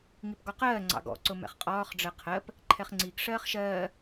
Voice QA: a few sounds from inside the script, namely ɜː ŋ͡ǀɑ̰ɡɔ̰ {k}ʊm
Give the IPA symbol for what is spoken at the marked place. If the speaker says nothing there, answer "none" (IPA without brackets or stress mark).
ǀ